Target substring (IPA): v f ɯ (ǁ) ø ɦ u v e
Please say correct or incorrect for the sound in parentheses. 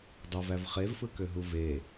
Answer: incorrect